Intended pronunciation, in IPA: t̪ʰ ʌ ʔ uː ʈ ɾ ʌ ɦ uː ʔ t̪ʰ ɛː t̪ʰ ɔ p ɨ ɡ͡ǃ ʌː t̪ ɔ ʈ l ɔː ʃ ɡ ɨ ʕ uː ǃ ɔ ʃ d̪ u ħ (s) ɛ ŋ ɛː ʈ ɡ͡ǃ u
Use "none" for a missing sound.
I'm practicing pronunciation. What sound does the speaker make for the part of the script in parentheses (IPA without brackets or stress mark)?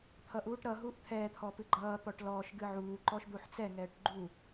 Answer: t͡s